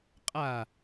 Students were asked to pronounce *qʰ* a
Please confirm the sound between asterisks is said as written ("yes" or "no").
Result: no